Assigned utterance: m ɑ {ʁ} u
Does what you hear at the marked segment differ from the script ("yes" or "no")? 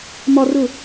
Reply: yes